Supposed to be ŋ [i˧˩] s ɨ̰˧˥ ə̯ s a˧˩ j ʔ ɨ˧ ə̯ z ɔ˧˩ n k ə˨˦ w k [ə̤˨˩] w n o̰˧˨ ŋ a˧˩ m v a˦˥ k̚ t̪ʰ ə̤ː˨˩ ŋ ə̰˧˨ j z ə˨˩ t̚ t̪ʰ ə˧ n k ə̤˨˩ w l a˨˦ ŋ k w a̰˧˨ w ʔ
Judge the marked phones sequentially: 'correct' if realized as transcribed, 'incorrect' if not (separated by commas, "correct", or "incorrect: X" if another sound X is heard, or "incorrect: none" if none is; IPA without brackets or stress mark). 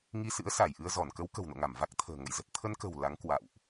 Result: incorrect: i˧, correct